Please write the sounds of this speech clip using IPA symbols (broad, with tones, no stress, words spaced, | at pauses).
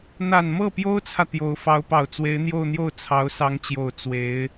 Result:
n̪a˨˩nmɤ˥˩pjo˥ʊ̯t͡sʰä˨ t̪jo˧˥ʊ̯ fɑ˧˥ʊ̯pɑ˨˩ʊ̯ t͡swe˧˥ɪ̯n̪jo˥˧ʊ̯n̪jo˥˩ʊ̯ t͡sʰɑ˧˥ʊ̯sɑ˧˥ŋt͡ɕjo˨˩ʊ̯ t͡swe˧˥ɪ̯